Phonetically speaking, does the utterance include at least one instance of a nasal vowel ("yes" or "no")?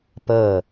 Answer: no